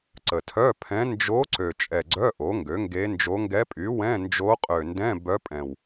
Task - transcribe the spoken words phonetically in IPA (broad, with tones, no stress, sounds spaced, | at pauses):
ǀ ə˨˩ tʰ œ˧˥˧ pʰ ɛ̃˧˥ n d͡ʒ o˧˥ ǀ ø˨˩ t͡ʃʼ ɛ˨˩ ɡ͡ǀ œ˧˥˧ ʔ o˩˥ ŋ ɡ ø˩˥ ŋ ɡ e˧˥ n d͡ʒ o˧˥ ŋ ɡ ɛ˧˥ pʼ y˩˥ w ɛ̃˧˥˧ n d͡ʒ o˧˥ qʼ ø˨˩ n d ɛ̃˧˥˧ b œ˧˥ pʼ ɛ̃˨˩ w